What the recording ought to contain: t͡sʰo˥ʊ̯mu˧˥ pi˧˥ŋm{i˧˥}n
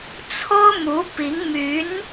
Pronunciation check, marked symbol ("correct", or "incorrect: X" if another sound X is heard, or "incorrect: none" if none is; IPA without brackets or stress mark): incorrect: y˧˥